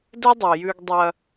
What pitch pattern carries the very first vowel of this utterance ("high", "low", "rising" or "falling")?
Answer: high